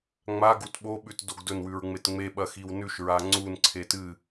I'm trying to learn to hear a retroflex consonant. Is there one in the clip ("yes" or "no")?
no